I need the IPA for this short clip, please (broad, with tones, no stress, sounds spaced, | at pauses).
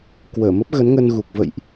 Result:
k w əː˧˩ m ə˦˥ p̚ ɣ ə˨˦ n ŋ ə˧ n ɣ u˨˩ k̚ v ə̰˧˨ j ʔ